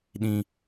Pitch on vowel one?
high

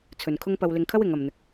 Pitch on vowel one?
low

